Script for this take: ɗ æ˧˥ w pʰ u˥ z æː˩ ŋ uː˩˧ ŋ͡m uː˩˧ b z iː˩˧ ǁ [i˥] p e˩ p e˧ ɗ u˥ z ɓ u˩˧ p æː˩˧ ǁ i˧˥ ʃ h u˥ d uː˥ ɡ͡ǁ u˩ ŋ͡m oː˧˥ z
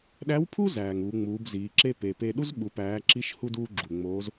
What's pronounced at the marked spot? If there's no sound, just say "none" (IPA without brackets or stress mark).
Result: e˥